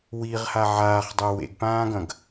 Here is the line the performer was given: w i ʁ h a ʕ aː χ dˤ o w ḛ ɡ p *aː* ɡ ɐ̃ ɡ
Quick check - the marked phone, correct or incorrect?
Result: incorrect